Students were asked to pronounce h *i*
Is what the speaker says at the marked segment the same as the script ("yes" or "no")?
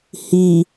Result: yes